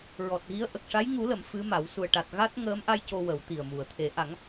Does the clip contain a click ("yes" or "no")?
no